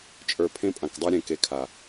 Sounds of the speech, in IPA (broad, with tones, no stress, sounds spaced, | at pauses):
t͡ʃʼ ə˞˨ pʰ ẽ˦ pʼ ã˨ k dˤ ə˞˦ ɾʲ ẽ˨ k e˨ kʰ a˨